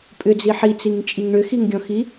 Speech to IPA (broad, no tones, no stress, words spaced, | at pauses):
pʼʏd͡zi ħit͡siŋt͡ʃʼiŋ ɳʏxiŋɡʲɔ̃xi